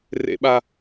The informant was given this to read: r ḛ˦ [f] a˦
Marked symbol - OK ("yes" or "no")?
no